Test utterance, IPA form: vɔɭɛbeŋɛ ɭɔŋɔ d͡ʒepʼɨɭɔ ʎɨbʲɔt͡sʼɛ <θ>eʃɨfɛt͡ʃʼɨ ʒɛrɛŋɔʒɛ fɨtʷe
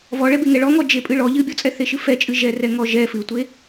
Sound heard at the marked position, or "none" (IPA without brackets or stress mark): θ